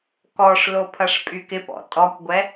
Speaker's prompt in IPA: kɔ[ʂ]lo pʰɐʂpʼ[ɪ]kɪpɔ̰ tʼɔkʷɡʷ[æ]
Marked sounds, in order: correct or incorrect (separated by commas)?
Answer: correct, incorrect, incorrect